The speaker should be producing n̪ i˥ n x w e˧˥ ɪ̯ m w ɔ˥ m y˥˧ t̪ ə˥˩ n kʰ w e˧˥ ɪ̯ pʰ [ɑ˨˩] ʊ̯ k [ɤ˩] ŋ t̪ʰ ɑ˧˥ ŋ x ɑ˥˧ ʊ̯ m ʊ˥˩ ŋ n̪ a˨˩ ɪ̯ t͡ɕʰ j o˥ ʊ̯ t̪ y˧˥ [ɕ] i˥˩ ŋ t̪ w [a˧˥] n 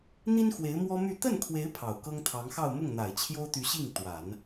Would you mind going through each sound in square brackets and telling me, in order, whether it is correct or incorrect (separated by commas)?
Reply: correct, incorrect, correct, incorrect